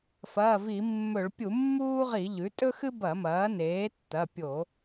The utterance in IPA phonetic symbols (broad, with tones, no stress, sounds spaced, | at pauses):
f ɐː˩˧˩ v i˧˩˧ mː ɵ˧˩˧ ɭ pʲ u˧˩˧ mː uː˥ ʁ i˧˩˧ ʎ ʉ˩˥ tʼ ɵ˥ x ɨ˥ b ɐ˧˩˧ m ɐː˩˥ n eː˩˥ tː ɐ˩˧˩ pʲ o˧˩˧